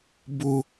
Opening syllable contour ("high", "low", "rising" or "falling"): high